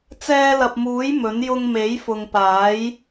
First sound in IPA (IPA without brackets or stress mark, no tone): t͡s